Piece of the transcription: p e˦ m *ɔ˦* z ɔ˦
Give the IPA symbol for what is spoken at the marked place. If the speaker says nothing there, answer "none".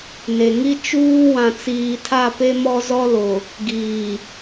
ɔ˦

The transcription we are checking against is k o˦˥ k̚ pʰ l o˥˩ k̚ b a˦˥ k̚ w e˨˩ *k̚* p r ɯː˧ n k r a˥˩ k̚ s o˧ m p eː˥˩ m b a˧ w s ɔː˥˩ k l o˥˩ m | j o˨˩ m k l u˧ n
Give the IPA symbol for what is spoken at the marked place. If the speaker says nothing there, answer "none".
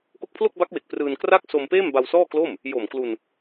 k̚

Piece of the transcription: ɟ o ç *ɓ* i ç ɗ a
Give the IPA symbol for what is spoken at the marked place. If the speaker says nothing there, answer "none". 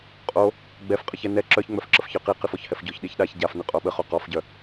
ɗ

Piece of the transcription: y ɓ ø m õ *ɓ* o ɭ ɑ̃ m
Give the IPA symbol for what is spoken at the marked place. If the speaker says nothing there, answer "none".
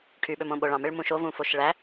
ɓ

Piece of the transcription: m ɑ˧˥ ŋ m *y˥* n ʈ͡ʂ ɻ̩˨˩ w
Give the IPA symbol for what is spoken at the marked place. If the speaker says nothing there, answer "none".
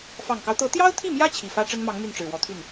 y˥˩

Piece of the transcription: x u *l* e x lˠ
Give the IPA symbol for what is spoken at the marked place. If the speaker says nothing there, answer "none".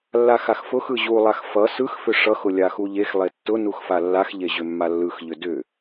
ʎ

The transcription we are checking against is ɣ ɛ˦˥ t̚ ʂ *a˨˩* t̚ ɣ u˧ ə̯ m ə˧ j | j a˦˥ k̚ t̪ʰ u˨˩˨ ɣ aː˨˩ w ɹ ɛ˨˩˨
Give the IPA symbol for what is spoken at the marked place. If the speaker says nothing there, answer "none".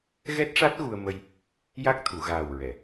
a˦˥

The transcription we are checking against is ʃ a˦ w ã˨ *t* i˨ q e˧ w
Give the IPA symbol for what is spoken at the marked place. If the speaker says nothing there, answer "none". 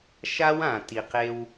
t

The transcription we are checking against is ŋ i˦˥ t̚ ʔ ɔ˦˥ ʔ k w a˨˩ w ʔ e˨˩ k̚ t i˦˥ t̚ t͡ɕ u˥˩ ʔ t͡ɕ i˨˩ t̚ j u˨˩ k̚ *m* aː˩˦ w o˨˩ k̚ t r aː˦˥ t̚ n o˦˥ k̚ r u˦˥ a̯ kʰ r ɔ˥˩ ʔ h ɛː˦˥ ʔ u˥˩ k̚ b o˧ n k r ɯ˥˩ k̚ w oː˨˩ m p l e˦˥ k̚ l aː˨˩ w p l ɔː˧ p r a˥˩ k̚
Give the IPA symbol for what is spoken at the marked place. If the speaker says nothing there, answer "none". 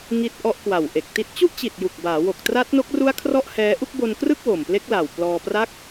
b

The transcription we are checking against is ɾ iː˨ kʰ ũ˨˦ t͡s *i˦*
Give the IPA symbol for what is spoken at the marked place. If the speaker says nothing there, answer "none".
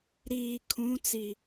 i˨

